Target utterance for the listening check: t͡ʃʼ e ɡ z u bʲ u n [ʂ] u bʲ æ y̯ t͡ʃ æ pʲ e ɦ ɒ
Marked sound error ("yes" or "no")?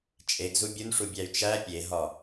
no